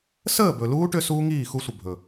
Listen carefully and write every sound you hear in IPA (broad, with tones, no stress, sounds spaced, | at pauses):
s əː˦˨ b ɵ˨ l uː˦ ʈ ʏ˦ s uː˦ ŋ iː˦˨ x u˦ sʷ ə˨ bʱ ɵ˨